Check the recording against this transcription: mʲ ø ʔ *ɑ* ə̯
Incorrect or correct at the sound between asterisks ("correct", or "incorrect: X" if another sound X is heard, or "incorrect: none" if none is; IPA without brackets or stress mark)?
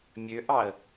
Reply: correct